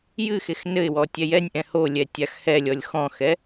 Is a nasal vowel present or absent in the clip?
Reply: present